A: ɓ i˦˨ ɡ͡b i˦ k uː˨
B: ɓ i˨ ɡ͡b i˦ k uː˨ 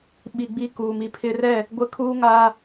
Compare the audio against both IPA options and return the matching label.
B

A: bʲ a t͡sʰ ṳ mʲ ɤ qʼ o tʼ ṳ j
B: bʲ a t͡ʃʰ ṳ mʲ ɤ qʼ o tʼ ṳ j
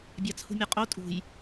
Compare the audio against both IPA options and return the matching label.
A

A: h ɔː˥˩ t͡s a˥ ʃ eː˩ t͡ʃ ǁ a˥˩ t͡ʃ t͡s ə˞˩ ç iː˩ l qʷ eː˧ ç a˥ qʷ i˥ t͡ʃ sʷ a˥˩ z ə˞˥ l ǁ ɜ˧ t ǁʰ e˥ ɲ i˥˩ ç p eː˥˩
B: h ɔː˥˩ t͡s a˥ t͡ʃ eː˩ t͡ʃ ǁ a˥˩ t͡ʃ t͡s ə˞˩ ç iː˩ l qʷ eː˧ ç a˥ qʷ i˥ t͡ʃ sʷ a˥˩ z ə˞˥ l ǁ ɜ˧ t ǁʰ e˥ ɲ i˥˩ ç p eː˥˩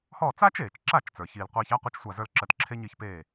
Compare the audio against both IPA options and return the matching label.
B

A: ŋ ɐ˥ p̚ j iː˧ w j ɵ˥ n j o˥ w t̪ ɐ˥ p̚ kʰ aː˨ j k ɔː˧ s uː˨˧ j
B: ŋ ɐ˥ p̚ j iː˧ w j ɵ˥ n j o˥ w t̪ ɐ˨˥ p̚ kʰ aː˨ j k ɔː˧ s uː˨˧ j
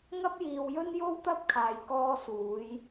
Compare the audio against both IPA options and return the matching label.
A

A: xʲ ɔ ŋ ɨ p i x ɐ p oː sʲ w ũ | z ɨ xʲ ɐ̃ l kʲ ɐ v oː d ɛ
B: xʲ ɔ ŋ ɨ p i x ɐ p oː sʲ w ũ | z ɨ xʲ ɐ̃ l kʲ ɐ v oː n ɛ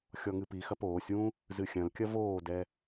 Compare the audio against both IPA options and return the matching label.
A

